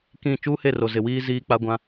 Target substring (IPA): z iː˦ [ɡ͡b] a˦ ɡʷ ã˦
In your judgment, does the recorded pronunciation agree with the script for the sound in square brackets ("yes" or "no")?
no